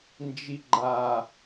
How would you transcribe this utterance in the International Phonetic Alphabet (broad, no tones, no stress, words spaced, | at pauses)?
nd͡ʒiɡ͡ǃa